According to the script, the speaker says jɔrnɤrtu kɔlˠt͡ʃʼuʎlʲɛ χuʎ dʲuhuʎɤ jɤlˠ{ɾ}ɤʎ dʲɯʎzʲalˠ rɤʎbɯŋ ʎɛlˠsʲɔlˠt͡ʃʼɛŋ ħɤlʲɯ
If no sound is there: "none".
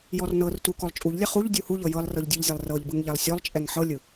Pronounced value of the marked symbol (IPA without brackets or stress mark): r